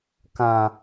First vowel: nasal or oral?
nasal